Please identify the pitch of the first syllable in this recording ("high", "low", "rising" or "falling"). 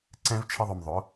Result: high